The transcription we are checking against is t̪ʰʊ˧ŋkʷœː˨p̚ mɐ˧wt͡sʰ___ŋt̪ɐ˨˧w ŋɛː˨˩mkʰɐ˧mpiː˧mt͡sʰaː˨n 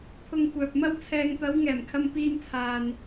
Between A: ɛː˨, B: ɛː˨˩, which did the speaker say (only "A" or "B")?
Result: A